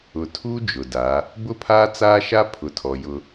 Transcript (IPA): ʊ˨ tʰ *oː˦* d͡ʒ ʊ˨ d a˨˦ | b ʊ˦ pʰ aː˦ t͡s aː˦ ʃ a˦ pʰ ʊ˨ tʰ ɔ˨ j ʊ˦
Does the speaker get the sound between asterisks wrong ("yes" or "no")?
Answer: yes